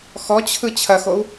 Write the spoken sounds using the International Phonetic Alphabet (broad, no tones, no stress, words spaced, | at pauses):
xɔt͡ɕʰɯ t͡ɕʰɐxou̯